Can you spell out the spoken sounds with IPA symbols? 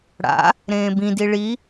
ɽ a̰ | ɾ ẽː b ĩ d i ɭ i

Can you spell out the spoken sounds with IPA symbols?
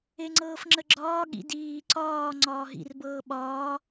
e ŋ͡ǀ ɤː f ŋ͡ǁ ə ɡ͡ǁ ɒː ɠ ḭ d iː ǀ ɒː ŋ͡ǀ ɒː ɦ ḭ r b ɤː ɓ ɒː

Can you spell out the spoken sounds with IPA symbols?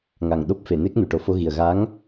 ŋ a˨˩ ŋ ɗ o˦˥ p̚ f e˨˩˨ n e˦˥ k̚ n u˨˩ ʈ o˨˩˦ f o˧ ɣ i˨˩ ə̯ ɣ a˧˥ ŋ

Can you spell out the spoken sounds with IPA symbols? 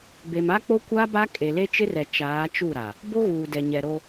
b e˨ m a˦ k͡p o˦ kʷ a˦ b a˦ kʼ e˨ l e˦ t͡ʃ ɪ˦ r ɛ˨ t͡ʃ aː˨˦ t͡ʃ u˦˨ ɾ a˨ | b o˦ ɣ uː˨ d ɛ˨ ɲ ɛ˨ ɾ o˦

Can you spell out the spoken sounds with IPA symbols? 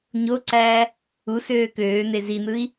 ɲ o ǀ æː | u s øː k øː n̪ e z i n̪ ɯ i̯

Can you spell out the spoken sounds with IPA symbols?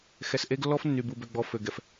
x ɛ˨ s ʔ e˦ ɡ lː ɔ˦ f nː y˨ b u˨ b ø˨ ɡ͡b ɔ˨ f ø˨ ɡ ɛ˨ f

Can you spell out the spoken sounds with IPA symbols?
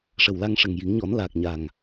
ʂ ə˨˩ w l a˧ ŋ ʂ ə˨˩ ŋ j i˨˩˦ ŋ ɲ ɔ˨˩˦ n l aː˨˩ k̚ ɲ a˨˩ ŋ

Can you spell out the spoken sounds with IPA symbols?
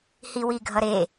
h i w i ɡʱ ʌ ɾ e

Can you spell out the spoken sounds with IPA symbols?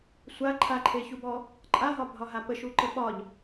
sʷ a ǃʰ a ǃʰ e ç u b ɔ | ǃʼ a ɦ ɒ bʱ ɒ ɦ a p ə ʃ u ǃ ə ɓ ɒ ʎ

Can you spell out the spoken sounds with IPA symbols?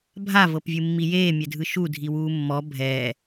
bʱ a v ɤ p vʲ ɯ mː i j eː mʲ ɛ dʱ ɯ ʃ u dʱ i w uː mː ɔ bʱ ɛ

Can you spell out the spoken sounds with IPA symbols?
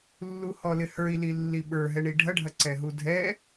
lː u h ɔ l ɪ h ə˞ i̯ l i lː i ɓ ə˞ ɦ ɛ ɳ i ɖʱ ɐ ɖʱ ɐ ǀ ɛ ɦ u dʱ ɛ

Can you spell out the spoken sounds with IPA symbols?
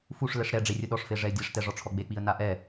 f u ʂ l ɛ ʂ ɾ ɛ ɖ͡ʐ e rʲ ʊ ɗ ɔ ʂ f e ʐ ɛ ɪ̯ dʲ a ʂ t ɛ ʐ ɔ ʈ͡ʂʰ ɔ ɡ͡b e k͡p i ə̯ n a ʔ ɛ

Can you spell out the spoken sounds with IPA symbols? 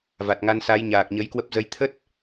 v a˨˩ t̚ ŋ a˧ n s a˨˦ j ɲ aː˨˩ k̚ ɲ ə˨˦ j k w ə˦˥ p̚ z ə˧ j t̪ʰ ə˦˥ t̚

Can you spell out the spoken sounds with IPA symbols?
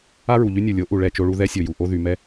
a˦ ɹ u˨ ʎ y˦ nʲ u˨ lʲ o˨˦ ʔ u˨ ɭ ɛ˦˨ t͡ʃ o˦ ɭ u˦ ð ɛ˦ sʲ o˨ j u˨ ʔ o˦ ð y˨ m ɛ˦

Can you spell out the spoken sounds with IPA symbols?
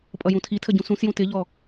pʼ ʌ j ũ tʰ i tʰ ə ɟ ũ s ũ s j ũ t ɪ ʎ ɔ

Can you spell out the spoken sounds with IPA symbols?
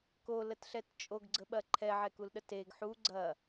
k o l ə t ɬ ɛ t t͡ʃʼ o ɡ ɡ͡ǀ ə ɓ ɐ ǃʰ ɛ ʕ ɛ k u l ɗ ə t e ɡ ħ u ɡ͡ǀ ɐ

